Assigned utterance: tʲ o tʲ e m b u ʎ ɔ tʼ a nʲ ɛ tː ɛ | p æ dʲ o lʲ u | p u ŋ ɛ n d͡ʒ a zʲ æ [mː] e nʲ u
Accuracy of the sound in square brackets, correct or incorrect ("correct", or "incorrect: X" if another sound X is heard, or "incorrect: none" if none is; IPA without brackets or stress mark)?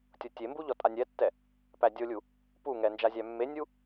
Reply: correct